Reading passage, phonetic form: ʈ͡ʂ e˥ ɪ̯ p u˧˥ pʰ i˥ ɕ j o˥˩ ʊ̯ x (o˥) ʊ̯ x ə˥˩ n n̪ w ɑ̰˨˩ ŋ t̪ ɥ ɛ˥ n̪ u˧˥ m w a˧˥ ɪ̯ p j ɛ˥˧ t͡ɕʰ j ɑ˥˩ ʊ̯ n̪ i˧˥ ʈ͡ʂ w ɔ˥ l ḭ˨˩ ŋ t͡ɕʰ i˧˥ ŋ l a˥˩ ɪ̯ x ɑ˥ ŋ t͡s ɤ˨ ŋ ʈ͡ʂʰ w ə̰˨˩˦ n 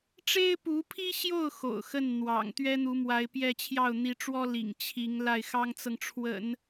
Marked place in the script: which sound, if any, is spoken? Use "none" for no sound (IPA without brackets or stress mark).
o̰˨˩